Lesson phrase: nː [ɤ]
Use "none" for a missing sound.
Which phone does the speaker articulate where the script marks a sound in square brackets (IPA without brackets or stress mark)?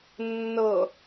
ɤ